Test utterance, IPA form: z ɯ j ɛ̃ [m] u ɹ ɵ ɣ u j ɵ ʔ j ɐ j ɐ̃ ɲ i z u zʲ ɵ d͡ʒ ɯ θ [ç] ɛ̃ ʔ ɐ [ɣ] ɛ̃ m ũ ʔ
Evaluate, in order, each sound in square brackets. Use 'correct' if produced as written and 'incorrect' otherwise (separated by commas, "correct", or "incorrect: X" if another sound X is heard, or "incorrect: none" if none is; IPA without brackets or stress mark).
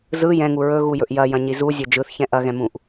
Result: incorrect: ŋ, correct, correct